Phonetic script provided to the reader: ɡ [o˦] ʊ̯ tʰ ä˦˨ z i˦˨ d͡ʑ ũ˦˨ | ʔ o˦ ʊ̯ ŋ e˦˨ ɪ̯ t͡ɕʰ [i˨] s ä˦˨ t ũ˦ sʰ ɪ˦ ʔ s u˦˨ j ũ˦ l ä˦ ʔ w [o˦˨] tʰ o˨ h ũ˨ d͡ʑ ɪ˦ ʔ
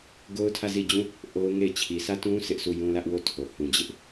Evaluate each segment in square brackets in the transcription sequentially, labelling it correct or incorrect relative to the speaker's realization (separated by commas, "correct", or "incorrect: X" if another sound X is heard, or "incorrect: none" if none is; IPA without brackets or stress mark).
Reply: correct, correct, correct